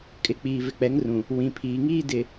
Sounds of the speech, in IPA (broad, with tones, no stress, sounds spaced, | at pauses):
kʼ ɪ˨˦ k͡p iː˨ v ɪ˨ k͡p ɛ˨˦ ŋ r ũ˨ | w ĩ˨ pʰ iː˨ ŋ iː˦ d ɪ˨